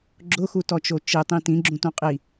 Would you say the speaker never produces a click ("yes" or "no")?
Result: no